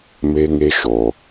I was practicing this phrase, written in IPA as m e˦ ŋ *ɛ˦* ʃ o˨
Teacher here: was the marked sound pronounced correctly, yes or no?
no